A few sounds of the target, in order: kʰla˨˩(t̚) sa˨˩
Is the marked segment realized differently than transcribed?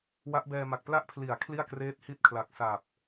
yes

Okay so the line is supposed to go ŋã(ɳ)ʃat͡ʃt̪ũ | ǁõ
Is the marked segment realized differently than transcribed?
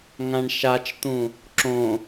no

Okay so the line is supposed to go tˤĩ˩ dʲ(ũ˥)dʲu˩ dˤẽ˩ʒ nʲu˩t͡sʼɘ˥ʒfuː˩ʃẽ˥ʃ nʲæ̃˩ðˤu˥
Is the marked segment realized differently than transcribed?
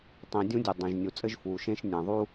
no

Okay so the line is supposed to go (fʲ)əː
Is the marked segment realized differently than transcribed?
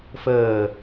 yes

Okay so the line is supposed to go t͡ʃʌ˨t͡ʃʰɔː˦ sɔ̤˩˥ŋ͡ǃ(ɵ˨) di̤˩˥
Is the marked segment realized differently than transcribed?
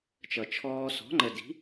yes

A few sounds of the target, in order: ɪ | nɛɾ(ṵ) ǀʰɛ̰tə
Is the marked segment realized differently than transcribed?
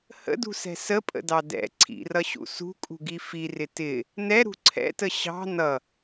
yes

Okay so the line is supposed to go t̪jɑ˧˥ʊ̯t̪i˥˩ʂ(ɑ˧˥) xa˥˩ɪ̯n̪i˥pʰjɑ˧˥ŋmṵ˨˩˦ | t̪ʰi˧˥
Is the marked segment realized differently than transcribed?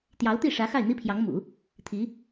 yes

